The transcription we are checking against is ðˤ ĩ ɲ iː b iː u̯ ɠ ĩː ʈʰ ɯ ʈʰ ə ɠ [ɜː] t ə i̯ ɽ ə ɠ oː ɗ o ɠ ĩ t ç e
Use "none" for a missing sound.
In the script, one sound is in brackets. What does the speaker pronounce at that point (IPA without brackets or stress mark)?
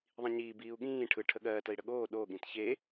ɜː